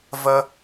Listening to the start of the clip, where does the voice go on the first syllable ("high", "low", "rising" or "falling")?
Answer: high